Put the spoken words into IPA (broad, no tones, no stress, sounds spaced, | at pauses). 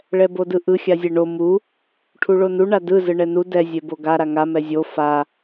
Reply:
ɭ ɛ b o d ɯ ʔ ɯ xʲ a zʲ e ɳ o m u | ʈʰ u ɭ o n u ɳ a d ɯ z ɯ ɳ ɛ n u d ɛ zʲ e b o ɡ a ɾ a ŋ a m ɛ zʲ o f a